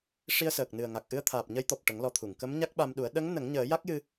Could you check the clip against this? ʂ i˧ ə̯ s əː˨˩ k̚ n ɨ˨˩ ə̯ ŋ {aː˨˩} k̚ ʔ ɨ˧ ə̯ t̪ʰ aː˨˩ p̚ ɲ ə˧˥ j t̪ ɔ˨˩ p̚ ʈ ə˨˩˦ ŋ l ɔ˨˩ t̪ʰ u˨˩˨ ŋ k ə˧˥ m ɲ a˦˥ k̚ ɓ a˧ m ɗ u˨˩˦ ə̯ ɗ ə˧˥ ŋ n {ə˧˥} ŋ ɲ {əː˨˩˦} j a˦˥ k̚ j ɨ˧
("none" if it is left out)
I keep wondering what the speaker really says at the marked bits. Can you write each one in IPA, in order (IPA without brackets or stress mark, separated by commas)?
a˨˩, ə˨˩˦, əː˨˩˦